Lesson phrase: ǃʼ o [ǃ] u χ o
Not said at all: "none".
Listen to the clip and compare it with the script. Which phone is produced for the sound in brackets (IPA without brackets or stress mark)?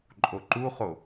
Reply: ǃ